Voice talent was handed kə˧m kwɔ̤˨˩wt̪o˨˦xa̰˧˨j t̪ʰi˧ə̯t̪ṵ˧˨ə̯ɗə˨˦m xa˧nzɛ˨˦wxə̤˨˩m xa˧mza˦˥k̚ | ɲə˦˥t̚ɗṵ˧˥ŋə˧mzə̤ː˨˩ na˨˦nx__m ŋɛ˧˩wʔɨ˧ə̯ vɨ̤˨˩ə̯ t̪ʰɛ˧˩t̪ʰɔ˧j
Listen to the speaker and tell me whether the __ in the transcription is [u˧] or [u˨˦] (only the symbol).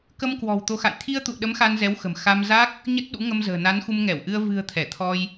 u˧